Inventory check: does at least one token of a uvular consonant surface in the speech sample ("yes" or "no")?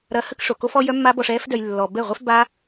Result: yes